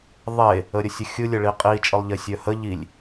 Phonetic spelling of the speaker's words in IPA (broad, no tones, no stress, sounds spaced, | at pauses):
ðˤ e | ə ɾʲ ə sʲ ə xʲ ɯ lʲ ə ɭ i qʼ i t͡ʃʼ ɯ lˠ ʎ e sʲ œ h ə ʎ i lʲ